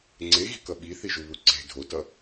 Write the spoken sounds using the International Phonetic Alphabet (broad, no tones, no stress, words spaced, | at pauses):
ŋ͡ǀeɣi̤kʌ ɓiθiʒuβu ǀe̤ dʱotʌ